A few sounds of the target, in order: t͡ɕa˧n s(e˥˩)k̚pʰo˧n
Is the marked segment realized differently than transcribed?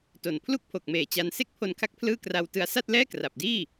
no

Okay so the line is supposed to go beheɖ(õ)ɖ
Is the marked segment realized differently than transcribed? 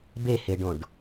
no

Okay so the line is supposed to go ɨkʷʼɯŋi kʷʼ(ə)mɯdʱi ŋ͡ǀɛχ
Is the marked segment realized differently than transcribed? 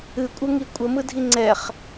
no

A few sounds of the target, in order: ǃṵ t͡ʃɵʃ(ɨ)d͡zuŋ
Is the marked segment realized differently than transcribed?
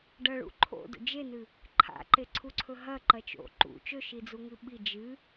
yes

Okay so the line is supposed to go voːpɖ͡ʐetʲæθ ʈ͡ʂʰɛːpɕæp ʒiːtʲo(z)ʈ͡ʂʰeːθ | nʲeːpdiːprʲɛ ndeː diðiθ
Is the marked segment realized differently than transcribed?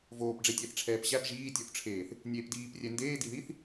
yes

